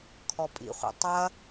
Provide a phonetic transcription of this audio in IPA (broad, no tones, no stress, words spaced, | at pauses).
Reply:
kʰɔpʼḭχʷɛ̰ tˤɐ